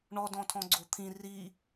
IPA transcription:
ɳ ɔ d ɔ̃ tʰ ɔ̃ ɡ͡ǀ o t̪ʰ ĩ r i

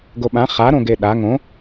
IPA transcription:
ɡ o ɓ ã χ a ɾ õ ɡ e ɗ a ŋ õ

